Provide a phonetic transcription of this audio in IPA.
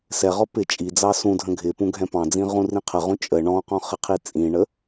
s ɛ ʁ ɔ p ɪ t͡ʃʼ i d͡z ɑ s ũ dʱ ə̃ ɡʱ ɪ p ũ ɡʱ ɛ̃ p ɑ̃ d͡z ĩ ʁ ũ r ĩ qʰ ə ʁ ũ t͡ʃʼ ə ɳ ɔ̃ q ɔ̃ χ ɪ qʰ i t͡sʼ ĩ ɳ ə

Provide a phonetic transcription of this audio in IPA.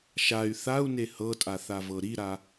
ʃ a y̯ θ a u̯ n e h ɤ tʼ a θ a v ɤ ɾ i ɾ a

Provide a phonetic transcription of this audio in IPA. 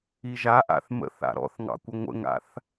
i ʒ a ʔ a̰ θ m ə̰ θ a̰ ɾ ɔ̰ θ ŋ ɑ̰ kʷ ə ŋʷ ə̰ ŋ a̰ θ

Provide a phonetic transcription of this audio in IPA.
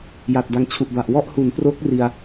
j a˨˩ t̚ d a˧ ŋ t͡ɕʰ u˨˩ ʔ b a˨˩ ʔ w ɔ˥˩ ʔ h u˩˦ n p r o˦˥ k̚ r i˧ a̯

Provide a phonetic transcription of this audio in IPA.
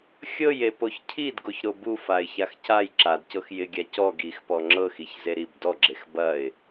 xʲ ɤ j e p o ç cʰ i d ɡ o ç ɾ o b u f a ɪ̯ ç a x c a j ǁ a d c ɤ x j ɪ ɡʲ a c ɔ ɡ i x p ɔ ŋ͡ǁ ɤ x i ç z e ɾ i b d ɔ ɡ͡ǁ e x b ɐ ɪ̯

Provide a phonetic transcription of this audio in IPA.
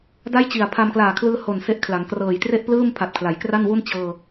d a˥˩ j t͡ɕ i˨˩ a̯ pʰ a˧ m k l aː˨˩ kʰ l ɯː˧ h o˨˩ n s e˥˩ ʔ kʰ l a˩˦ ŋ k r ɤː˨˩ j t r e˥˩ ʔ p l ɯː˥˩ m pʰ a˨˩ t̚ kʰ l a˩˦ j k r a˥˩ n w u˥˩ n t͡ɕ ɤː˧

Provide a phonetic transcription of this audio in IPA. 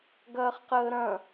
ɡ ɐː χ q əː ɾ ɐ̃

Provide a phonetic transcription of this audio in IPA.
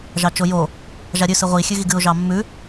ʒ ɑ t͡ʃ o j o | ʒ a ɾʲ ʉ s ɨ ʁʷ i xʲ ʉ ɣ i ɡ ɨ ʊ̯ ʒ ɑ mː ʉ

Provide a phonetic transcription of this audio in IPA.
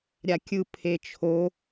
ɾʲ a kʲ ɯ pʰ e t͡ʃʰ o

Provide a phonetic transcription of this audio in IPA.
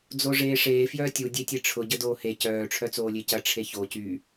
d͡z o ʐ eː ʂ eː f j œː tʲ u dʲ e tʲ e ʈ͡ʂʰ ʊ ɟ ə d oː h e c œː ʈ͡ʂʰ œ t͡s oː lʲ e c ɐ ʈ͡ʂʰ e ç o c y

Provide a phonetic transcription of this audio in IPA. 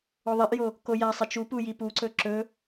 o ðˤ i ʔ j o | k o j a sˤ e t͡ʃ u p u j i p u ǀ ɵ ǁ ɵ

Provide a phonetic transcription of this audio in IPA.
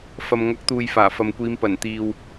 f ɐ˨ m ŋ ɐ˨˥ k̚ t̪ uː˨ j f aː˨˩ f ɐ˨ m kʷ iː˨˧ m p ɐ˨˩ n t̪ iː˨ w

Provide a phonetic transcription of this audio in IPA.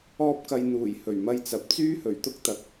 ɔː˥ p̚ k ɐ˧ j n̪ uː˨˩ j h ɵ˨˩ ɥ m ɐ˧ j t͡s ɐ˨ p̚ t͡s yː˥ h ɵ˨˩ ɥ t̪ ʊ˥ k̚ t̪ ɐ˨ k̚

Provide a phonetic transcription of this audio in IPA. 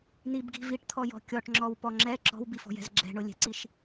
n i b ɡ i̤ v i ʈ t̪ʰ ɔ j ɔ̤ kʲ ɔ ʈ ŋ͡ǁ ɔ w p ɔ ŋ͡ǁ ɛ ǁ ɔ̤ w b i f ɔ̤ j ɛ̤ z ɡ͡ǁ ɛ̤ ɳ ʊ lʲ ɛ̤ ǀ i ʃ

